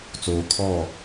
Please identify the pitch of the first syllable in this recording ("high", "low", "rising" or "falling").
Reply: low